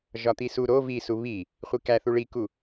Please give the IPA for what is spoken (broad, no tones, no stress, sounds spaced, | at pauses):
ʒ ɒ t̪ i s u ɾ o v i s u β i | χʷ i k æ θ u ɭ i k u